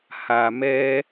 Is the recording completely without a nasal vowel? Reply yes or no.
yes